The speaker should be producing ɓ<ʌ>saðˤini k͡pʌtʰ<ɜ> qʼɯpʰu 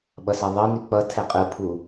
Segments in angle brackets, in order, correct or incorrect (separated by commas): correct, incorrect